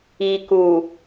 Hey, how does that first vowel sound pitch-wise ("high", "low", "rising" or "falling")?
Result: low